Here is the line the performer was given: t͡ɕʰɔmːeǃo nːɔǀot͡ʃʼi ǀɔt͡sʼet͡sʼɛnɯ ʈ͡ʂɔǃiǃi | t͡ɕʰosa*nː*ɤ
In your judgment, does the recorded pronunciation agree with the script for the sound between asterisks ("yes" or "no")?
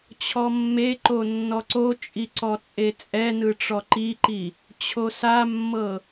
no